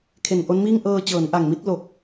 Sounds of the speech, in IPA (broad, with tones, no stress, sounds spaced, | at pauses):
kʰ e˨˩ n ʔ o˦˥ n m iː˥˩ ŋ ʔ ɤː˧ t͡ɕ ɤː˩˦ n ʔ a˨˩ ŋ m i˥˩ t̚ l o˨˩ k̚